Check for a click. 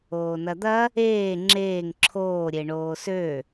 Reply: present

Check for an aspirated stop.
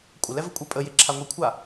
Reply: present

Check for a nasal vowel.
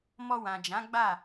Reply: present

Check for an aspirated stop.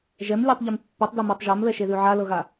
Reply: absent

